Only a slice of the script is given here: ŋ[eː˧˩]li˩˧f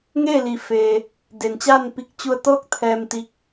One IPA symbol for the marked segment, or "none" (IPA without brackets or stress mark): eː˥˨